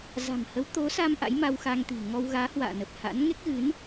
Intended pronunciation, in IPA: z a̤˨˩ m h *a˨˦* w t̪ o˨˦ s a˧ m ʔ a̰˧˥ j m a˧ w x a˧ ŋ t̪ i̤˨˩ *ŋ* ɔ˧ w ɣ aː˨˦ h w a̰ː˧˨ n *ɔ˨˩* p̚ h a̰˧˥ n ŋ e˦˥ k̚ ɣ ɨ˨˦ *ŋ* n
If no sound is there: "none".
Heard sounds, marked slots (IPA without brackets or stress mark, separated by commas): ə˨˦, ŋ, ə˨˩, none